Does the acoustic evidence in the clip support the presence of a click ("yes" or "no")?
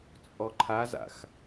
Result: yes